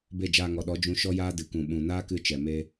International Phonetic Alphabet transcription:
be˦˨d͡ʒaː˧ŋɔ˨ ɗɔ˨˦d͡ʒũ˧ ʃɔ˦jaː˦ dɨ˨kũ˨ ɓũ˨naː˦kɨ˧ t͡ʃɛ˨me˦

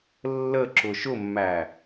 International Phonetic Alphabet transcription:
lːəǁʊ ʃʊmːæ

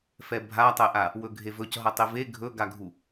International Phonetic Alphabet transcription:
fɛbʱatˤɛʔa | wɵɡʱevɵcɦʌ tˤive ɡʱɵɡaɡʱu

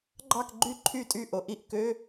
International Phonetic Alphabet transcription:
ɡ͡ǃɑ˥˧kɡ͡ǃy˥˩ǃʰy˥˩tʼy˥˩ ʔo˨ʔi˥˩ʔkø˧˥˧

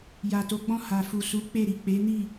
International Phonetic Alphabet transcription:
ja˨to˨˦ɡ͡bɔ̃˦˨ ha˨fu˨su˨˦ k͡pe˦˨ɾi˨ k͡pe˨˦ni˦˨

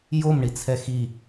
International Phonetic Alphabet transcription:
jomɳit͡sʰɛ xi

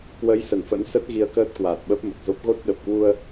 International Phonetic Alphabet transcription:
kwə˨˦j sə˧˩nfə̰˧˥nsə˦˥t̚ ɣi˧ə̯kəː˦˥t̚kwaː˨˩t̚ ɓə˦˥p̚mə˨˩t̚zo˦˥p̚ ɣo˦˥t̚ ɗə˨˩p̚kwu˧ə̯

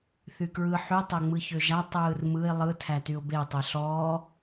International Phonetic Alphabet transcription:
θykɹɯ ħy tˤøŋ͡mɯçøʒa tˤɯːrmɯɪ̯ lˠɯ tʰætyʊ̯be tˤeɬɔː

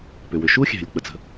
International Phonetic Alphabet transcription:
pʏ˩wʏ˩ ʃu˥xʲɛ̤˩lʲ k͡pə˩t͡sə̤˩

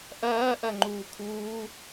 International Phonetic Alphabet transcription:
ʔɐːʔɐ ŋ͡ǃuːkʰuː

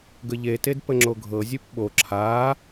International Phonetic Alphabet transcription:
ɡəʎeted pəŋ͡ǁoɡʱɤzʲup ɓo ǁʰaː

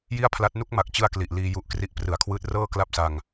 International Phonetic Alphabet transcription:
ji˥˩a̯pʰla˦˥t̚ nu˦˥k̚ma˨˩k̚t͡ɕɯ˧a̯ kli˨˩ʔ liː˧ ju˦˥ʔkri˦˥ʔprɯ˨˩a̯kʰwɯː˦˥t̚ rɤː˥˩ kla˥˩p̚sa˧ŋ

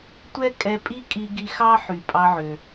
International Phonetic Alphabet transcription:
tʷɛ˥ kʼɛ˧pʼi˥ kʼi˧ɡi˧ xɑ˥ħy˩ pʼɑ˧ʕø˩

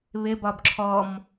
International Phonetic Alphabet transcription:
βɪbɒb ǁʰɔm

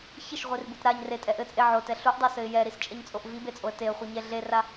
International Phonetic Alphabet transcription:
çɘʃʁʷirbut ɾaɲ retʼɛ ʔɘt͡sʼe ʕotɛ ɬuʔdˤesɘɪ̯ jɛɾist͡ʃʼɛɲt͡sʼoʔ vibet͡sʼoə̯ teə̯χʷɨɲɛ ɮera

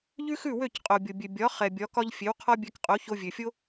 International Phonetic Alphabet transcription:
ʎʉ˥xʉ˥˩wø˥˩c qʼo˩bʲo˩bʲø˩ bʲɒ˩˥ χɛ˩bʲɒ˩˥kɒ˥ʎ fʲe˩˥wqʰɒ˥bʲɛ˧kqʼo˩˥ ço˧vʲø˩fʲo˥

